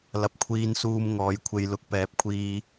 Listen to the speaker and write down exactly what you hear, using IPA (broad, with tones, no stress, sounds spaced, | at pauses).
l ɐ˨˥ p̚ kʷʰ iː˧ n s uː˧ m ŋ ɔː˨˧ j kʷʰ e˧ j l ʊ˨˥ k̚ p ɛː˨˥ p̚ kʷʰ iː˧